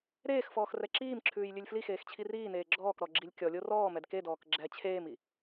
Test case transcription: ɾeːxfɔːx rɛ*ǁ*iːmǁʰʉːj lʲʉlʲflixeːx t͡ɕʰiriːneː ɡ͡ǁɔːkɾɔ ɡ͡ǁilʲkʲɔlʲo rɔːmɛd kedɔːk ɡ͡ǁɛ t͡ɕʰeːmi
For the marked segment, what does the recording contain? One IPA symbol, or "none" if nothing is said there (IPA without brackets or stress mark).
ǁ